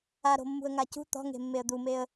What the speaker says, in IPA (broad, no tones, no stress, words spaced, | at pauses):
aɾo̤mːṳə̯ŋa cṳ t̪ɔ̤ŋe̤mːeə̯ d̪umeə̯